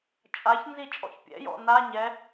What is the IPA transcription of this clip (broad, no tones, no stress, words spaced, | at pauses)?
t͡ʃʼaçnzi t͡ʃʼɔ̰çpʲɛ̰jɔ̰ na ɲɛ